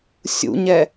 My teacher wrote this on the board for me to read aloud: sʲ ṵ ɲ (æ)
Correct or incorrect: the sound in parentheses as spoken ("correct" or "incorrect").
incorrect